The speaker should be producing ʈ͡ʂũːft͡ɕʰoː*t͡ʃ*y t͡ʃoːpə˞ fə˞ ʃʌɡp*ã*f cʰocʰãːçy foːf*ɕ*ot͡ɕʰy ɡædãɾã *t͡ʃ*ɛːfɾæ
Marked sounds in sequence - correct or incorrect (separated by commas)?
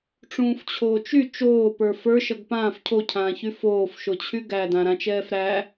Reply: correct, incorrect, incorrect, correct